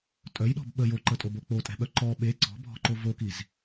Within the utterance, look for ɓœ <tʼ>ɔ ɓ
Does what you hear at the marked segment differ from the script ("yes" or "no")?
yes